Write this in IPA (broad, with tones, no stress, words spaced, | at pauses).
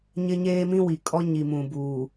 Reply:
ɲɪ˦ɲeː˦mĩ˦wi˨ kʼɔ˦ɲi˨mũ˨ buː˨